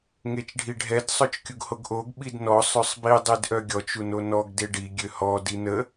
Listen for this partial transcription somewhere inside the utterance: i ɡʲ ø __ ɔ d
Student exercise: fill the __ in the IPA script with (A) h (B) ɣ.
A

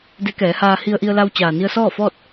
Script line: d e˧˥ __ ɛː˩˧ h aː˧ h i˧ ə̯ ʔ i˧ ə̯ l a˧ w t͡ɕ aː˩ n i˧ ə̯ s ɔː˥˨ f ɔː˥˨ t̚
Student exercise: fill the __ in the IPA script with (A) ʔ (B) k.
B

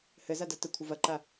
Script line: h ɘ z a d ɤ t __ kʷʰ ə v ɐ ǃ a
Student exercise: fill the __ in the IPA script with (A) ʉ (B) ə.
B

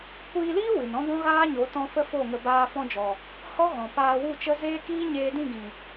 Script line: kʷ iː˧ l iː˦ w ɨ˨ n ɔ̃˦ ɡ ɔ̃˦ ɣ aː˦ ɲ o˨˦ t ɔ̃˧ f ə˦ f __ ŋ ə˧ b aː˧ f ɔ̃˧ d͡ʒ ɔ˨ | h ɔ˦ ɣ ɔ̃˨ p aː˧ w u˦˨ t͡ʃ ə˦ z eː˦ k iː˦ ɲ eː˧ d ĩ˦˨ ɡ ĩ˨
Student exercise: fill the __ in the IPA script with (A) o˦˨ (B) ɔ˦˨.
A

